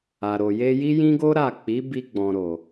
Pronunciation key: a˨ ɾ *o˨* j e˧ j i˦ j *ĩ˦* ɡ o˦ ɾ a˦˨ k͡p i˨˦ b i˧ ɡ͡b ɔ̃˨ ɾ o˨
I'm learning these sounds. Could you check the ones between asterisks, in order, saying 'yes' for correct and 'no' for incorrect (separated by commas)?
yes, yes